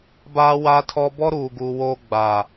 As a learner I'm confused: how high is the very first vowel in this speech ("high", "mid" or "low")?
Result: low